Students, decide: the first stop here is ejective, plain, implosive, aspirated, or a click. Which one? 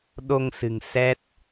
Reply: implosive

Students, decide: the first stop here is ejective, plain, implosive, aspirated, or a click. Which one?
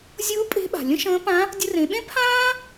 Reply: ejective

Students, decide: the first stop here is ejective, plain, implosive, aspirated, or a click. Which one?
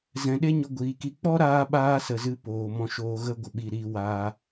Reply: implosive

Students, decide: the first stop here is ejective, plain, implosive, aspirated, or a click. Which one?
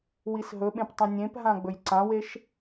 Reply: implosive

